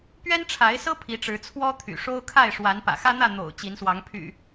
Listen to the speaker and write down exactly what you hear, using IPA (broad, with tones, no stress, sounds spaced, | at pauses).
p ɥ ɛ˦ n ʈ͡ʂʰ a˨˦ ɪ̯ s ɤ˦ pʰ i˨˦ ʈ͡ʂ ɻ̩˨˦ t͡sʰ w ɔ˦ t̪ʰ y̰˨˩ ʂ o˦ ʊ̯ kʰ a˥˨ ɪ̯ ʂ w a˨˦ n p ä̰˨˩ x ä˦ n̪ ä˥˨ n̪ o̰˨˩ ʊ̯ t͡ɕ i˨˦ n s w ɑ˨˦ ŋ pʰ y̰˨˩